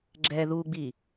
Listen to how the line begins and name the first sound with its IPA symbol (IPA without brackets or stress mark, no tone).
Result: ɡ͡ǁ